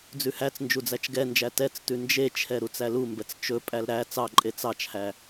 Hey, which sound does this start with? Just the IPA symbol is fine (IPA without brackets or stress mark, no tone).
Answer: d͡z